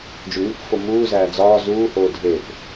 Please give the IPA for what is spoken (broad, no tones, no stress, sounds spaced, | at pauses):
d͡ʒ u ŋ u k f o m uː z æː d͡z ɒː z uː h oː dʱ e p